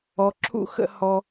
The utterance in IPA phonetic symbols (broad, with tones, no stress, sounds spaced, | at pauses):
ɔ˧ ǁʰ ṵ˥ x ə̰˧ h ɔ˧